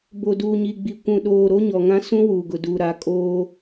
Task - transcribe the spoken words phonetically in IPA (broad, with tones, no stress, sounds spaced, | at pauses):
b o˨ d uː˨ ɲ i˨ ɡ͡b i˨ kʷ ũ˨ ɗ oː˨ ɾ o˦ ɲ ɔ˨ ŋ ã˦ s ũ˦ w uː˨ ɡ ʊ˨ d uː˨ ɾ a˨˦ kʼ oː˦